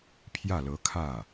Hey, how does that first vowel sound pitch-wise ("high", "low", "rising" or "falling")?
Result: falling